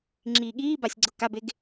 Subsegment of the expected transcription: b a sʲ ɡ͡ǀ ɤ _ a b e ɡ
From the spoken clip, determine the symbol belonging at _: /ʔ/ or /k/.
k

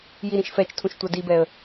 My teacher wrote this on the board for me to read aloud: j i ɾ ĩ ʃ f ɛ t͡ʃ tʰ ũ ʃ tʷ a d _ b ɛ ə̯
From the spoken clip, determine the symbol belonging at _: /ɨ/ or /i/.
i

